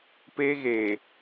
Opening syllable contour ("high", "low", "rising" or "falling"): high